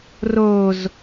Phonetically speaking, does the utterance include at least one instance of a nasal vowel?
no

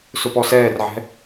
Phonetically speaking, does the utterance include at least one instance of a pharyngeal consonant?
yes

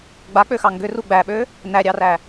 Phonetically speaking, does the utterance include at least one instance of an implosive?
yes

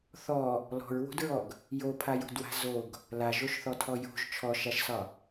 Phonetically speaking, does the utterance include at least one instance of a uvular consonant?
no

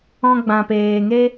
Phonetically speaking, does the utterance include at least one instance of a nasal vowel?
yes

